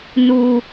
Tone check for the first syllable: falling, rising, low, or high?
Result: high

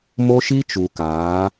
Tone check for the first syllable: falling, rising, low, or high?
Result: high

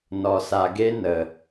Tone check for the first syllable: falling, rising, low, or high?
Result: low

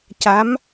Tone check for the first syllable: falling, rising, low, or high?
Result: rising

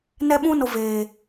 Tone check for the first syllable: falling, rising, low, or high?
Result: high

